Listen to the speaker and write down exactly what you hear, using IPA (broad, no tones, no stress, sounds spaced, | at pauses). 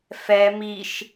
f ɛ m i ʃ